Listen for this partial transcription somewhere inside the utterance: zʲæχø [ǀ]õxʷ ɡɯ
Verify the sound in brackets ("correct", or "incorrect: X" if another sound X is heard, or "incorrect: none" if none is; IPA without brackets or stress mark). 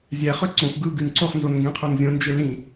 correct